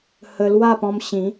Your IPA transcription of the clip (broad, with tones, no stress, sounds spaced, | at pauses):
h ə˧ l w a˥˧ p ɔ̃˧ m ɕ ĩ˨˦